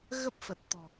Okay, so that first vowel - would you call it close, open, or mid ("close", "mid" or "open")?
mid